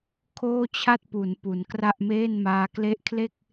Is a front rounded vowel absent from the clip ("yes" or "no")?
yes